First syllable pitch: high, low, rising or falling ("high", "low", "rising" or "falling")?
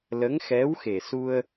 rising